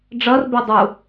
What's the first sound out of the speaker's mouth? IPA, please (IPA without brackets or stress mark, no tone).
ɖ͡ʐ